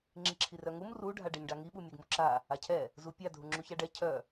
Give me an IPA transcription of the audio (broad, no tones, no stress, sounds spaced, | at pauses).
ŋ͡ǁ i ǁʰ i r œ ŋ u m r u ɖʱ a ɖ e ɲ ɖ a ŋ i ɓ u mʲ ɛ ɡ m u ǁ a | a cʰ ɛ | z u pʲ a dʱ u ŋ͡ǁ u ç a ɖ ɛ cʰ œ